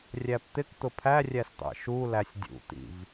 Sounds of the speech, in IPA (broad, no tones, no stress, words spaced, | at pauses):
rʲæpt̪ɪkt̪ʊ pʰærʲæs t̪ɑ̰ʃulæsʲ dʲṵt̪ḭv